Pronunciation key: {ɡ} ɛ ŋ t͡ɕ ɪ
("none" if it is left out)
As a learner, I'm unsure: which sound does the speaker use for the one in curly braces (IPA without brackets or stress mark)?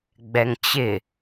ɡ͡b